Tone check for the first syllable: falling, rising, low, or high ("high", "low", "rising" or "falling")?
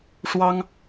high